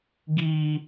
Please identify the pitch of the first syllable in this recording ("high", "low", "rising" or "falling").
high